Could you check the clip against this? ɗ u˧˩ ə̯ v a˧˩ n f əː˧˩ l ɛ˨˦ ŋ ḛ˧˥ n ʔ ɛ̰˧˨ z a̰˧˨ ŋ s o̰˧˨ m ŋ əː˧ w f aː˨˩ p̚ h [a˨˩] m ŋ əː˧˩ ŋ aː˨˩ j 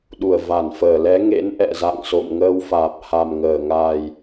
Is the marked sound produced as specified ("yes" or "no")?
yes